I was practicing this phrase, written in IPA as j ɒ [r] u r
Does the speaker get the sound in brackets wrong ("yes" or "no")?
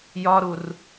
yes